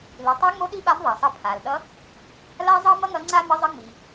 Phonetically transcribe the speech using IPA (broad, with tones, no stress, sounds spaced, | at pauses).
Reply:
l i˩˧ tˤ a˧˥ ŋ͡m o˧˥ ɗ i˧˥ ɓ a˧˥ m ðˤ a˩ sˤ ʌ˧ pʰ a˩ l ɗ ʌ˧˥ | l a˥ zˤ ʌ˥ m ʌ˥ ŋ ʌ˧˥ ŋ͡ǀ a˥ m ə˧˥ zˤ ʌ˧˥ ŋ͡m i˩